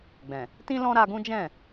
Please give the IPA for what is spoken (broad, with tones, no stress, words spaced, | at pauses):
ɡ͡bɛ̃˨ | tĩ˦lɔ̃˦ ɾa˧ɡũ˦ d͡ʒɛ̃˦˨